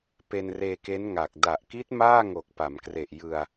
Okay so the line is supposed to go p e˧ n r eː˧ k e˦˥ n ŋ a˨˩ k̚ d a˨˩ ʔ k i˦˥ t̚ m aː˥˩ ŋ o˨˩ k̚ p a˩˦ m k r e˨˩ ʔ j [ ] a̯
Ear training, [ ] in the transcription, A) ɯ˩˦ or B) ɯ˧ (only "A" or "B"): B